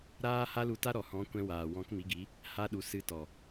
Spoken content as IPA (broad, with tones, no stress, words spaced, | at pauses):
ɾaː˦ ha˦lu˧ta˦ɾɔ˨ hɔ̃˨˦ kʷɛ̃˧waː˨ wɔ̃˨˦kmi˨˦ɡi˨˦ | ha˧ɗu˨ sɨ˧tɔ˨